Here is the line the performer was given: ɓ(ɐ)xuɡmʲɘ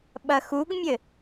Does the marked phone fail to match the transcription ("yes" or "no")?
no